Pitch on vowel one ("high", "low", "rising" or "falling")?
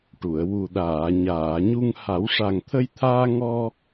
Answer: low